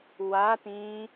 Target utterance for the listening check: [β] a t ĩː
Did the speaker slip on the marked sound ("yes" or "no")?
yes